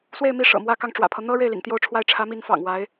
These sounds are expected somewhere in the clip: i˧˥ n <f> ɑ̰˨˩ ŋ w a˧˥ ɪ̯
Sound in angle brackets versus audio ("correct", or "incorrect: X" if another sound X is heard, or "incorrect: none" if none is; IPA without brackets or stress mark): correct